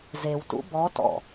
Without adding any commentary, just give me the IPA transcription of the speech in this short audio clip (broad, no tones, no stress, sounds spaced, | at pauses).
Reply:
z e w t ṵ b ɔ t ɔ̰